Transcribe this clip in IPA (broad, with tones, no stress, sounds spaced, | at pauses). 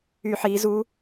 y˧˩˧ ħ iː˩˧ z u˧˥